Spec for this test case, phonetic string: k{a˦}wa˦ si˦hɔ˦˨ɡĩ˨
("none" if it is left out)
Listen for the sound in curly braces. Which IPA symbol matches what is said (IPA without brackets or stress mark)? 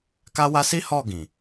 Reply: a˦